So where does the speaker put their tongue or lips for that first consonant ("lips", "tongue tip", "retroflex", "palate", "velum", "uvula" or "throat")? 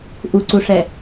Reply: throat